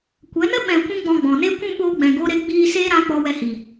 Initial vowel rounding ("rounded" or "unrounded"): unrounded